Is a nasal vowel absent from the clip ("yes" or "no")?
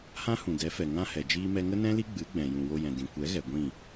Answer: no